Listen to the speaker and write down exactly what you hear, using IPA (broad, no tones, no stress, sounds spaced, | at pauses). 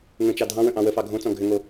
ŋ ə̃ t͡ʃ ɑ dʱ ɑ̃ w ə̃ ʔ ɑ̃ w ə f ɑ ɡʱ õ t͡s ɔ̃ ɡʱ ʏ ŋ o